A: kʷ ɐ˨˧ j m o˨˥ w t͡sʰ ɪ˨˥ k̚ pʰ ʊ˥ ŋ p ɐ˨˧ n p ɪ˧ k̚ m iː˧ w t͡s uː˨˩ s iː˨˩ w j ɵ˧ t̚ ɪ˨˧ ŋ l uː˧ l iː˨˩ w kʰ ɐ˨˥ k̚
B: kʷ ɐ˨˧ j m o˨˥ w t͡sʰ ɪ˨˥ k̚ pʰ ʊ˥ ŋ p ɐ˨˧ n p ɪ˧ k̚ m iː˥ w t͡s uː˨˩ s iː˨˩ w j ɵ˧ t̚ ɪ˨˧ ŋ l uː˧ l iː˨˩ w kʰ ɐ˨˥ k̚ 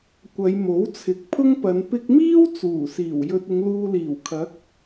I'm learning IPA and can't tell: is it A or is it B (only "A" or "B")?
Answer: B